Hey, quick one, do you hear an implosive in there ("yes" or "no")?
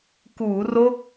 no